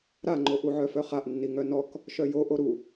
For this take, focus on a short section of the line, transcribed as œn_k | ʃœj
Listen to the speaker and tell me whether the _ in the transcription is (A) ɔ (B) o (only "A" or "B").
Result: A